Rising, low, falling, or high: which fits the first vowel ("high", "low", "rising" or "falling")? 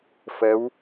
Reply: rising